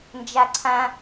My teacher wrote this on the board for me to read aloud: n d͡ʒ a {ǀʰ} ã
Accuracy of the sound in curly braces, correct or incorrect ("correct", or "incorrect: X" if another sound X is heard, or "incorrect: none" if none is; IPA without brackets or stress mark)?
correct